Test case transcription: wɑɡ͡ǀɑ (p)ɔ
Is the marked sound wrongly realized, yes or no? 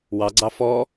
yes